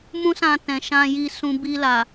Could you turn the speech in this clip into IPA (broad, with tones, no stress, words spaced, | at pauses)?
mũ˦sã˧tɛ̃˨ ʃã˧ji˧sũ˧ bi˧la˨